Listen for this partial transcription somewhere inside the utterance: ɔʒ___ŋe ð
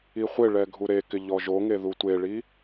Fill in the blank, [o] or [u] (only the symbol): o